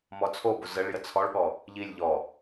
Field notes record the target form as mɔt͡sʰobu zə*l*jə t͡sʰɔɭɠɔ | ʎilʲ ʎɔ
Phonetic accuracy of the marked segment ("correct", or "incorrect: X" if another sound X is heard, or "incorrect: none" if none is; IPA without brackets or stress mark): incorrect: ɭ